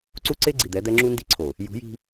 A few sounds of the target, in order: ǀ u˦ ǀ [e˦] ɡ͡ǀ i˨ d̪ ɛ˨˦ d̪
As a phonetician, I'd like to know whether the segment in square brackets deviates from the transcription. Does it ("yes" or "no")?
no